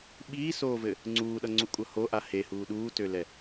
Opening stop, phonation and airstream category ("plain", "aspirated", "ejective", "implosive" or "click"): implosive